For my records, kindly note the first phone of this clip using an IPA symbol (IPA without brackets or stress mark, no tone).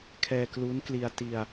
kʰ